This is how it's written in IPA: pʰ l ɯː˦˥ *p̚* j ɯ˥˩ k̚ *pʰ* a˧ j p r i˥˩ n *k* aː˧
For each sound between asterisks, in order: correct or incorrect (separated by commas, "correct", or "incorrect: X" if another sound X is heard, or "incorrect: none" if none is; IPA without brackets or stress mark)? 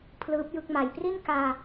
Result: correct, incorrect: m, correct